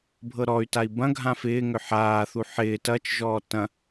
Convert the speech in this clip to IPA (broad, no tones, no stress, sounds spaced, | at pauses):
bʱ ɤ ɾ ɔ y̯ t a i̯ b ɐ̃ ɡʱ ã f ɪː ŋ ʏ ħ aː θ u ħ ɪː t ɐ t͡ʃ ʒ ɔː t ɐ̃